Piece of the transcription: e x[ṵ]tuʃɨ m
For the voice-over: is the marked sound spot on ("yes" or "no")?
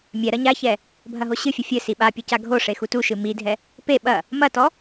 no